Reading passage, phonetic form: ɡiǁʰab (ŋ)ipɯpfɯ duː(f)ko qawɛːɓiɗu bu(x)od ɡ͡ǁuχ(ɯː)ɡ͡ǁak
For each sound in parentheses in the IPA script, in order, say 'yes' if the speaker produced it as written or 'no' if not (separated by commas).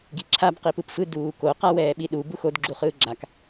no, no, yes, yes